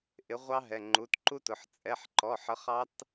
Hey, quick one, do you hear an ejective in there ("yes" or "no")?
yes